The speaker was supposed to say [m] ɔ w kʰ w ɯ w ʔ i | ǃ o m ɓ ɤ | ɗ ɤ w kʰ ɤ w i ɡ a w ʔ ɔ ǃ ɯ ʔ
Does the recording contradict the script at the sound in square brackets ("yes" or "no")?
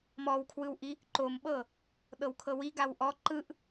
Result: no